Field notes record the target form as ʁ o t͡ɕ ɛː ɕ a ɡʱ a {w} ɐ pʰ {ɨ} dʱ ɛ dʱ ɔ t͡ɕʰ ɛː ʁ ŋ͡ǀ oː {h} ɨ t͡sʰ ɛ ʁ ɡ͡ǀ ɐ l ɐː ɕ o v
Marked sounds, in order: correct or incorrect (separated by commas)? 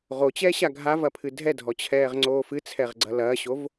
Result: incorrect, correct, incorrect